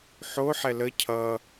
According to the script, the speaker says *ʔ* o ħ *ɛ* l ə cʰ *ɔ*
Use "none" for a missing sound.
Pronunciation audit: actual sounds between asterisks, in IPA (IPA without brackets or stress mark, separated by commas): ħ, ɛ, ʌ